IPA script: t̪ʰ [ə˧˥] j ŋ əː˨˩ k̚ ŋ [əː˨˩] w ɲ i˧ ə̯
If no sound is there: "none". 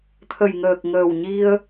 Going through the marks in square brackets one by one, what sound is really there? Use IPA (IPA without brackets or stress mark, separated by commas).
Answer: ə˨˩, əː˨˩